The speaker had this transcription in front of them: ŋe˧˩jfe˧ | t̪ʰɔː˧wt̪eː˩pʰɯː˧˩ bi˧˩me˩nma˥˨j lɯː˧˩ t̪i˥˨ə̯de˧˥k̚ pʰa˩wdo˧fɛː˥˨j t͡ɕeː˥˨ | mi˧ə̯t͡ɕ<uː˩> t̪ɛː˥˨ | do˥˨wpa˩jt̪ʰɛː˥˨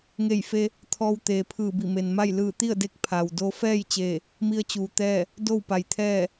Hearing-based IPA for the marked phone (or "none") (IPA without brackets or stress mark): uː˩